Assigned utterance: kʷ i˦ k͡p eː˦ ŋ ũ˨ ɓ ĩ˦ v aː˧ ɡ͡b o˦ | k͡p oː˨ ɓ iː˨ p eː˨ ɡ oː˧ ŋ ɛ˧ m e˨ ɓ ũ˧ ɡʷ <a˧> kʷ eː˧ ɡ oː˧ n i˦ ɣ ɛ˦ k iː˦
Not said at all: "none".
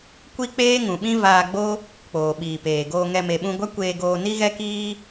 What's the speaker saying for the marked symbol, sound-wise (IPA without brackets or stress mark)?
a˦